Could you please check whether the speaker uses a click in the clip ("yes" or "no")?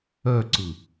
yes